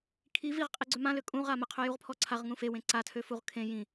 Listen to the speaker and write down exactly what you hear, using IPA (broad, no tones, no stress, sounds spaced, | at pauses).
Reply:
kʰ i v i ʁ qʼ i ɡ͡ǀ ø m ã l ø kʼ ũ ʁ a m ə qʰ ø j u ʁ pʰ ɔ ǀʰ a ʁ ŋ ũ f e w ẽ ǀ a tʰ ø f u ʁ kʰ ẽ j ĩ